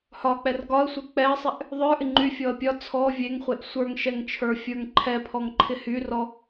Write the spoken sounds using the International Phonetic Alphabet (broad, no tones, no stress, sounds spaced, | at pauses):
h ɒ k͡p ɛ r ɡ ɒ ə̯ sʷ ə˞ k͡p ɛ ə̯ sˤ ɛ ʔ | ðˤ ə˞ ʔ ɪ ŋ͡ǃ y fʲ ɔ ə̯ pʲ ɒ t͡sʰ ɔ vʲ e ŋ χʷ e ʔ sʷ ə˞ ŋ ʃ ɛ ŋ t͡ʃʰ ə˞ fʲ ə˞ ŋ ǃʰ ɛ pʰ ɔ ŋ ǃʰ ɪ h y r ɔ